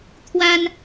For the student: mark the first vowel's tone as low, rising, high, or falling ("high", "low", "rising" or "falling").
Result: high